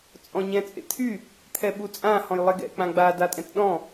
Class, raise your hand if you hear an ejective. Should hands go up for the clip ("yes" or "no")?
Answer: yes